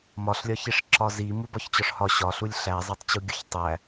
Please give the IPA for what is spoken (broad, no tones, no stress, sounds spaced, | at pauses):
m ɒ ɬ lʲ ɒ ç i ʂ ǁ ɒ z i m u b ɒ ç t͡ɕ ɒ ʂ h ɒ ɕ ɒ ɬ u lʲ ɬ æ zˤ æ tˤ t͡ɕ u ɡʲ o ç tˤ æ